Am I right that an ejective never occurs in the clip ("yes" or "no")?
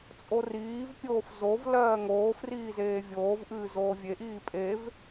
no